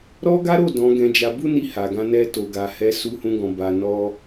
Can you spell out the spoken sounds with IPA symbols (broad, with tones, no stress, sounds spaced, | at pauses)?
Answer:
ɾ ɔ˦ ɡ a˦ ɾ o˦˨ d ɔ̃˨˦ ɡ ɛ̃˧ d͡ʒ a˧ b u˦ n i˧ h a˨ ɡ ã˧ n ɛ˧ t o˨ ɡ a˨ h ɛ˨˦ s u˧ h ũ˧ ɡ ɔ̃˨ b a˨ n ɔ˧